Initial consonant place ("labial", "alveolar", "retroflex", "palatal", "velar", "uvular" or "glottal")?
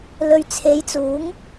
alveolar